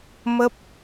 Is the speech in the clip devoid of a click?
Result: yes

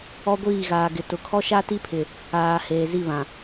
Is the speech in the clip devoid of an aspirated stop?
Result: no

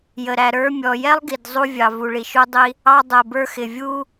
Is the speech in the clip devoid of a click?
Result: yes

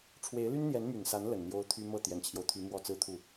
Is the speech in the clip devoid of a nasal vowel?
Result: yes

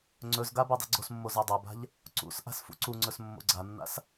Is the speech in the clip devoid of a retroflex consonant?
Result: yes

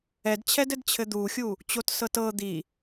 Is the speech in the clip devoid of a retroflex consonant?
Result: yes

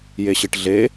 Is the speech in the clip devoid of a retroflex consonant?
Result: no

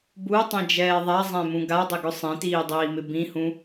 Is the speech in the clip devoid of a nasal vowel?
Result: no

